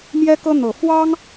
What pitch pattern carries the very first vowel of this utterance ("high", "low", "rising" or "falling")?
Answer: high